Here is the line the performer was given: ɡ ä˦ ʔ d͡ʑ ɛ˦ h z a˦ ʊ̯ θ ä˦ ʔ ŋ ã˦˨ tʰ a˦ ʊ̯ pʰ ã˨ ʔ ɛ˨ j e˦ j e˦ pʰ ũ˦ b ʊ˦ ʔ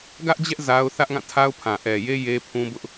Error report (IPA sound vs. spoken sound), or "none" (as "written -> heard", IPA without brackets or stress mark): h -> ʔ